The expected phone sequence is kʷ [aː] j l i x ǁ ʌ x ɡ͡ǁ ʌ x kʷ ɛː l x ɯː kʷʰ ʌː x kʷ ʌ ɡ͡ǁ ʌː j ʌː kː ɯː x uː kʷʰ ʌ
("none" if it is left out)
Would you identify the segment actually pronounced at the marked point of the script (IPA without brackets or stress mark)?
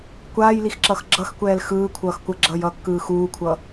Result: aː